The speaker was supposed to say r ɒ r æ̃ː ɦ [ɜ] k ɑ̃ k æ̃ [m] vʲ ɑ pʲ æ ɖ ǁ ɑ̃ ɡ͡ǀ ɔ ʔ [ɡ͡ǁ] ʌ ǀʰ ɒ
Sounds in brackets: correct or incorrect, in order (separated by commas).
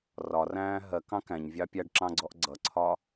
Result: correct, incorrect, incorrect